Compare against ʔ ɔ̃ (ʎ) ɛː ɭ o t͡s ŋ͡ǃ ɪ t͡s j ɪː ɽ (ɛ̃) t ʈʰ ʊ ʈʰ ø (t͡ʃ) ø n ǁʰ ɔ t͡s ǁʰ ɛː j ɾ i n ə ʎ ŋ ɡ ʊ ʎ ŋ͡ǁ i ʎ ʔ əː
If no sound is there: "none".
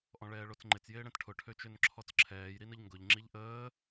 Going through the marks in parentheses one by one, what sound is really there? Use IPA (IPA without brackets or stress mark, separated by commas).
ɭ, ɛ̃, t͡ʃ